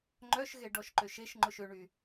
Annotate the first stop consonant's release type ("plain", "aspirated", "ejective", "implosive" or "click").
click